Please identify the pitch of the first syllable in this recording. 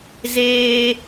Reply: high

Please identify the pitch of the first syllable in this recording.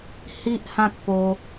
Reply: high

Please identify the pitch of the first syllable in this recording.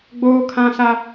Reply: high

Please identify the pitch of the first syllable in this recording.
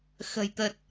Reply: low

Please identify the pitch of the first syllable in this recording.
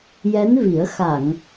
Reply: rising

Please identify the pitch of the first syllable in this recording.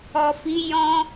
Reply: low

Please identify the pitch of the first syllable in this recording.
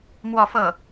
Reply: falling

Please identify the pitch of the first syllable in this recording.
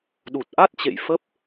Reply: low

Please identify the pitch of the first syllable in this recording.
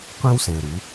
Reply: high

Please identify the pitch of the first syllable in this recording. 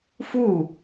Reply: falling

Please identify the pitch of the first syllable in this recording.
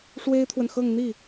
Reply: high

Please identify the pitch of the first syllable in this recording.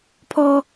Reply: high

